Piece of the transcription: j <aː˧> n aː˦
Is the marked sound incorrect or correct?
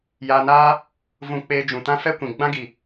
correct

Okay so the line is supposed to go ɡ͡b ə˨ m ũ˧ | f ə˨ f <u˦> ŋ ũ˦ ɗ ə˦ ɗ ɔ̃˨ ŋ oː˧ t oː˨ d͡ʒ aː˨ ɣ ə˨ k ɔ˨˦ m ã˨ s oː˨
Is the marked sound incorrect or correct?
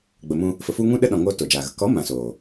incorrect: u˧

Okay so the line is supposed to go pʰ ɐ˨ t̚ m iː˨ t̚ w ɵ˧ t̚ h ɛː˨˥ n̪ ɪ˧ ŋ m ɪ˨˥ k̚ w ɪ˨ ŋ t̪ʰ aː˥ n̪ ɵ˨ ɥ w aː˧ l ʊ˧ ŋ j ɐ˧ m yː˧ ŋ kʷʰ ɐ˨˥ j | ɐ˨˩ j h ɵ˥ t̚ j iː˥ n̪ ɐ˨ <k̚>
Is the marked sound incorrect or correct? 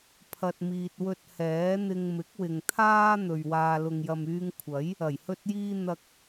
correct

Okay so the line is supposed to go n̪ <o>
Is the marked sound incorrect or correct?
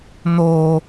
correct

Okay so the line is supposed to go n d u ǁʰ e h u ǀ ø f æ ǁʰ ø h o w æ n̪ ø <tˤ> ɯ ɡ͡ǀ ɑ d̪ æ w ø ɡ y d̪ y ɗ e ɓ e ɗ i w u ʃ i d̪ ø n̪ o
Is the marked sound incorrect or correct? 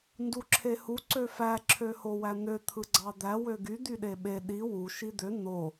incorrect: t̪ʰ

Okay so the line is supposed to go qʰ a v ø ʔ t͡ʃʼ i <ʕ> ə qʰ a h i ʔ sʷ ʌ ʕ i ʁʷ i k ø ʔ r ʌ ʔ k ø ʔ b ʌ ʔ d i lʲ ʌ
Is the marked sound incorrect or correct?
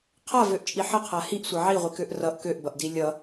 incorrect: ħ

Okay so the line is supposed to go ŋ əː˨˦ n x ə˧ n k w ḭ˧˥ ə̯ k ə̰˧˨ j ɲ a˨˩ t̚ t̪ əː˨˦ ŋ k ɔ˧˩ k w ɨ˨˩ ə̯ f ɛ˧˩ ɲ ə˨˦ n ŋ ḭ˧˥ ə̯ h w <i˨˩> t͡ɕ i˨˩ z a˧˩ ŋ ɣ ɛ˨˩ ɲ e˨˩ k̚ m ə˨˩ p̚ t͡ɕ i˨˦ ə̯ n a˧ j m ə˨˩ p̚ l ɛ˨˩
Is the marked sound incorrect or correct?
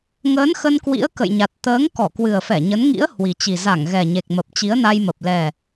correct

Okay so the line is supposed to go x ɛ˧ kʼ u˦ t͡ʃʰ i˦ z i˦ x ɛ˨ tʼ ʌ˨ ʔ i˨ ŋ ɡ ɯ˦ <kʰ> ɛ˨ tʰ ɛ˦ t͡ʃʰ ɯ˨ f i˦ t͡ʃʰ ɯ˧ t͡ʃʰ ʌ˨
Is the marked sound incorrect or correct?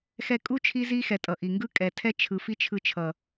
incorrect: kʼ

